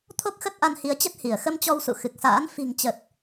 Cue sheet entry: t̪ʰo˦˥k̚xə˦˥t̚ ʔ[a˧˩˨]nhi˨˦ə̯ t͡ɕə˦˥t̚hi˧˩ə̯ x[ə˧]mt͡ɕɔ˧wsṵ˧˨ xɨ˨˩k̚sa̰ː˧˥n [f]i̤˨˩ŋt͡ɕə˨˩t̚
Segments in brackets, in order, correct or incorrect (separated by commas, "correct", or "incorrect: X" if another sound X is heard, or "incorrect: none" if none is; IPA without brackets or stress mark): incorrect: a˧, correct, correct